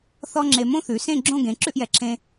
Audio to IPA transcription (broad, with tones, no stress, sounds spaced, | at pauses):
θ ɔ˥ ŋ͡ǁ e˧ m õ˥ θ ʉ˩˧ s ẽ˥˧ ɡ͡ǁ õ˥˧ ɡ ẽ˩˧ ǁ ʉ˥˧ ʔ j ɛ˩˧ ǁʰ ẽ˧